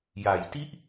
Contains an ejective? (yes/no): no